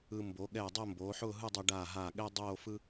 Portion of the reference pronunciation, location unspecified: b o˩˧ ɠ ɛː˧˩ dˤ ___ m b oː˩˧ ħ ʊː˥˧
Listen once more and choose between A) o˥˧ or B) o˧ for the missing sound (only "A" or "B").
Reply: A